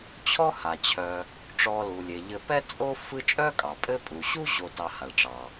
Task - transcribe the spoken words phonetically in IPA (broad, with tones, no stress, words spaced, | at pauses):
t͡ɕʰɔ˥ha˩t͡ɕʰœ˨ | ʈ͡ʂɔ˨lu˩lʲe˩ʎɘ˨ pɛ˥ t͡sʼo˦ fɯ˦t͡ʃʼœ˥kʼɑ˩ pʼɘ˦ pʼu˩ ɕu˥ʑo˨ tɑ˨ha˩ɭʈ͡ʂɑ˩